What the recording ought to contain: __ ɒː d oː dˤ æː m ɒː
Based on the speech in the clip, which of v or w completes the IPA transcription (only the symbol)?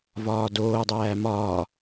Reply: v